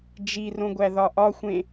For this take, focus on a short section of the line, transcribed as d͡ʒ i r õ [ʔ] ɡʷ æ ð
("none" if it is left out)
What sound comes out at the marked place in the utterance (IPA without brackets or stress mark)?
none